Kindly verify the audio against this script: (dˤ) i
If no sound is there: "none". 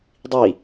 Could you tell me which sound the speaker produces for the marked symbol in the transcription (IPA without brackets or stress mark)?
dˤ